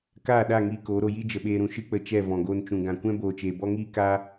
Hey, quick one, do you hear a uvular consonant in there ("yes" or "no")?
no